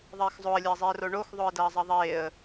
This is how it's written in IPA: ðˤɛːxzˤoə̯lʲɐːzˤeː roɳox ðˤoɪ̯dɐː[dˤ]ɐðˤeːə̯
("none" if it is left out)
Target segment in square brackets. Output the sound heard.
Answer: zˤ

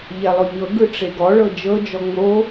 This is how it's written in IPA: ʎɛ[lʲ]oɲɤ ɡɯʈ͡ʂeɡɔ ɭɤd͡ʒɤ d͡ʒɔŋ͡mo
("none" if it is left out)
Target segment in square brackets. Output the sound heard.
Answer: lˠ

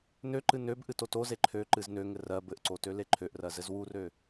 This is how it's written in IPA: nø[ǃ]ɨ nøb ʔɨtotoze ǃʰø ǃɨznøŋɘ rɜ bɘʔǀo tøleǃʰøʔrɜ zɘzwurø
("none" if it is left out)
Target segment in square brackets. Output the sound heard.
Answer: ǃ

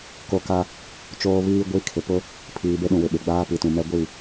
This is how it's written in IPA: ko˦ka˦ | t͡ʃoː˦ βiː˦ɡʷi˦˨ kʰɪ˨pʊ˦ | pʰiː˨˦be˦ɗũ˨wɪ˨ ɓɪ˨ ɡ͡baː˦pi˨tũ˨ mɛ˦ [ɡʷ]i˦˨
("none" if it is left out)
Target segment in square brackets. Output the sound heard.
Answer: ɡʷ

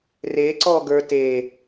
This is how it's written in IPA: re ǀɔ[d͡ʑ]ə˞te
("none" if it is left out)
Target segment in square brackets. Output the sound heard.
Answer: ɡ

